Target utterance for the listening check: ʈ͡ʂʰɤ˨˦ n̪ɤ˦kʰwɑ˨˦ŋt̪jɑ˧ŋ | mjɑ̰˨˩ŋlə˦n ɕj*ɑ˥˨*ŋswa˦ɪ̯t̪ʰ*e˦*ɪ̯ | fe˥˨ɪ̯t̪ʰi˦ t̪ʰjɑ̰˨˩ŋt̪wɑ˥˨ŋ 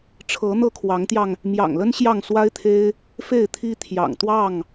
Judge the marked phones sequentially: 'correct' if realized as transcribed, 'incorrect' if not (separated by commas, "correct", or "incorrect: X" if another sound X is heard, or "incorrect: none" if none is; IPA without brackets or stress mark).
correct, correct